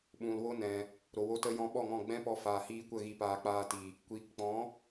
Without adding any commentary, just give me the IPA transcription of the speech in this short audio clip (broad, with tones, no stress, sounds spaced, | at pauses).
ɓ ũ˨ l w o˦ n ɛ̃˨ | ɾ o˨ w o˧ t ə˧ j ɔ̃˧ ɓ ɔ˦˨ ŋ ɔ̃˦˨ ɡ͡b ɛ̃˦ p ɔ˧ f aː˨ h iː˧ kʷ ə˦˨ ɣ i˨ p aː˨ k͡p aː˧ t i˨ | kʷ iː˨ k k͡p ɔ̃˨˦